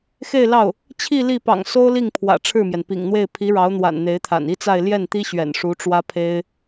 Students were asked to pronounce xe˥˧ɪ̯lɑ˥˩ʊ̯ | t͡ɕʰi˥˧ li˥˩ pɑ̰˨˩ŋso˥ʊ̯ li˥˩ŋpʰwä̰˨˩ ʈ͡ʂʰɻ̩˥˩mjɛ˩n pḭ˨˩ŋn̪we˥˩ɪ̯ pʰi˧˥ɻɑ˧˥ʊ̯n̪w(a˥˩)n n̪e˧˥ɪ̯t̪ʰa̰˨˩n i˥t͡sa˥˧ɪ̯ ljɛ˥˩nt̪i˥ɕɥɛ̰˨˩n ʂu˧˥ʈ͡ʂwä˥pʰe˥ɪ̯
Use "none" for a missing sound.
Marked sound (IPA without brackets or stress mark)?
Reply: a̰˨˩